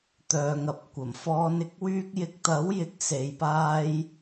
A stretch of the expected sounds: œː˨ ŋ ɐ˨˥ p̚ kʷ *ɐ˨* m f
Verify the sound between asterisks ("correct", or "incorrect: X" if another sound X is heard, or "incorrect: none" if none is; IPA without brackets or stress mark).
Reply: incorrect: ɐ˨˩